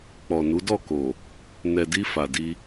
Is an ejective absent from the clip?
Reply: yes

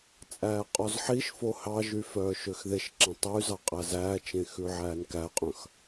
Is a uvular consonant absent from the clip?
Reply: no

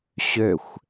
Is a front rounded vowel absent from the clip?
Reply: no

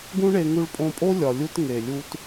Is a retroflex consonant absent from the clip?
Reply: no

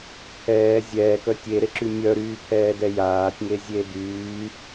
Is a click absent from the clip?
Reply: no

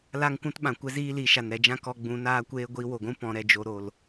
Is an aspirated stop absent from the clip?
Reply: yes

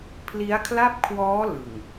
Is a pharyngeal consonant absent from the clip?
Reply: yes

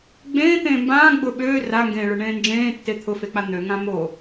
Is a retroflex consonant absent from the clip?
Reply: no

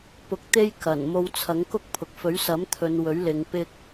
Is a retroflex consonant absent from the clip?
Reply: yes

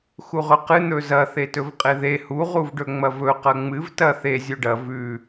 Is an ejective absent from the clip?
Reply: no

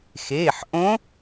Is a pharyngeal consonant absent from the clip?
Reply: no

